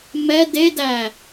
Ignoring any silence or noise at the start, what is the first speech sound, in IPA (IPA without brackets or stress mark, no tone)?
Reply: m